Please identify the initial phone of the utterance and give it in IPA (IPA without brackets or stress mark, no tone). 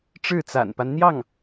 ʈ͡ʂ